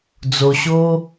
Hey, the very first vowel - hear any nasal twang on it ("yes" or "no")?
no